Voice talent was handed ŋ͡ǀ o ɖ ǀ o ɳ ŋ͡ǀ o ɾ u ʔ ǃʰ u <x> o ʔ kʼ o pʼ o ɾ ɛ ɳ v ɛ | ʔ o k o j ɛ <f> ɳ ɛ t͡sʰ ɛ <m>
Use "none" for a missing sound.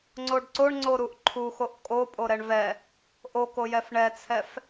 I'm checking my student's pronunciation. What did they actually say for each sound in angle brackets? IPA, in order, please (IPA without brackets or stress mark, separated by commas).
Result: x, f, f